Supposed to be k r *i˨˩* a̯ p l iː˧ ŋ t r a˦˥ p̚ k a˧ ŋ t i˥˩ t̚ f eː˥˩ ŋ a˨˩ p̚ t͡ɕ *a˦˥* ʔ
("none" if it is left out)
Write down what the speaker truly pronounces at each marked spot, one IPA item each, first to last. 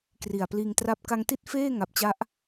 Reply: i˨˩, a˦˥

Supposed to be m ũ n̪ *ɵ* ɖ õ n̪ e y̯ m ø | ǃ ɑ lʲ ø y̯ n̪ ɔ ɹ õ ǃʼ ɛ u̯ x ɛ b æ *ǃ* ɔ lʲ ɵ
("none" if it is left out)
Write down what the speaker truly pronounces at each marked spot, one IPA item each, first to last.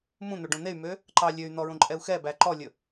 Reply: ɵ, ǃ

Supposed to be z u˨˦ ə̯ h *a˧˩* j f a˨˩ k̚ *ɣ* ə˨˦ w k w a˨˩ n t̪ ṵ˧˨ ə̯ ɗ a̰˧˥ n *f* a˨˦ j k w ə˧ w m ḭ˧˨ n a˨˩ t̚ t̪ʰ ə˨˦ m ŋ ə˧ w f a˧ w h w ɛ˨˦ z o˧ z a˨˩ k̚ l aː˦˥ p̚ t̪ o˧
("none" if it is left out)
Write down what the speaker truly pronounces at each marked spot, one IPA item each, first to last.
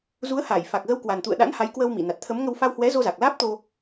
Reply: a˧˩, ɣ, h

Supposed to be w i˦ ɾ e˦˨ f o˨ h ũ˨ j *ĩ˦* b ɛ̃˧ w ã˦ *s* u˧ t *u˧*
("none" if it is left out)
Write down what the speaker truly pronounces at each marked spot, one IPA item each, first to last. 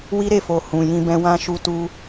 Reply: ĩ˧, ʃ, u˧

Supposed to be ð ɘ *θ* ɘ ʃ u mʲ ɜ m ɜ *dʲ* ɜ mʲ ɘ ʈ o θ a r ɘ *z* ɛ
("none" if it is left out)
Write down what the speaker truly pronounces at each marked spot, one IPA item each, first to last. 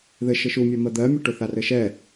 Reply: ʃ, d̪, ʃ

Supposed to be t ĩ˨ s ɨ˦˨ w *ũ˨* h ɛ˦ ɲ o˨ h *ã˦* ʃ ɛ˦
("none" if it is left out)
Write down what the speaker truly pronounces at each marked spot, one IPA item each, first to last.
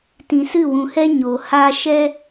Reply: ũ˨, a˦

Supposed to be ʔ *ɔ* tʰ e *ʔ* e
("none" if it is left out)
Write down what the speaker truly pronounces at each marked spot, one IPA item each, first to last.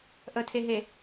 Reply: ə, ɦ

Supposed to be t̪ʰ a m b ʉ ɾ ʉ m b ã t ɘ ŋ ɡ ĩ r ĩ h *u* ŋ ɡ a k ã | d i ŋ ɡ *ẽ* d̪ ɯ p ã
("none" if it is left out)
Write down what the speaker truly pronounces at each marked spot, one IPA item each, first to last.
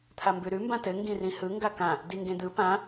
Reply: ɯ, ẽ

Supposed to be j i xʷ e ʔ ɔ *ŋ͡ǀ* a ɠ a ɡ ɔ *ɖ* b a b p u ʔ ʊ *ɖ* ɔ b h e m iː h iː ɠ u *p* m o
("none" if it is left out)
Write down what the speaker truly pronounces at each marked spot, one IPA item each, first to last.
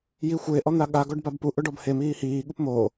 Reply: n̪, ɖ, ɖ, p

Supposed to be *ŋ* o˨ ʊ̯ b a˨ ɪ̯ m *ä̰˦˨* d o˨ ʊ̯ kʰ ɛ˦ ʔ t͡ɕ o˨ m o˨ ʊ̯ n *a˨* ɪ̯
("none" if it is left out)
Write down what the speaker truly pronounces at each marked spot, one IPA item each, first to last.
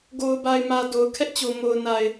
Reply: ɡ, ä˨, a˨

